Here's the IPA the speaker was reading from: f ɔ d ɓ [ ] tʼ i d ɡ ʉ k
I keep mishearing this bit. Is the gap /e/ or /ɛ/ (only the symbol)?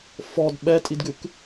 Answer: ɛ